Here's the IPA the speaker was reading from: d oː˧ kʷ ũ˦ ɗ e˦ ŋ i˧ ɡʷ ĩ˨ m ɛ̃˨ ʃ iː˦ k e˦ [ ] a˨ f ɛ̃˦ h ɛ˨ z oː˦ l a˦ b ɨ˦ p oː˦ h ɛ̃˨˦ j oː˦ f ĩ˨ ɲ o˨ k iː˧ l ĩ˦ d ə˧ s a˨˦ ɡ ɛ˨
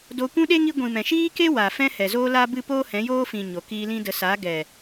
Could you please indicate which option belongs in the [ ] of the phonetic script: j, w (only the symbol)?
w